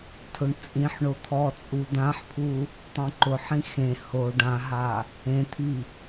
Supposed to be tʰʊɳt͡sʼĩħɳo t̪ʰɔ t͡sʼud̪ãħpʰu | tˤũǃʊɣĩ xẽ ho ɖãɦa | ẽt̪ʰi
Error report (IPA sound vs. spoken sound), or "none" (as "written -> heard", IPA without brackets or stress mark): ɣ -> ħ